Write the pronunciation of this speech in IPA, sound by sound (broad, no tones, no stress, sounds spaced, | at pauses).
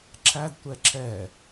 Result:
ǁ æ d tʷ ɛ ǁ ɛ